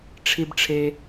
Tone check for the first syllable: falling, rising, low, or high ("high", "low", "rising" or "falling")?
high